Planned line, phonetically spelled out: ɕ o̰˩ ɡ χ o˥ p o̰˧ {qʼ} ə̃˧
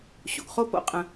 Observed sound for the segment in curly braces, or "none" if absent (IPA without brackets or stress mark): qʼ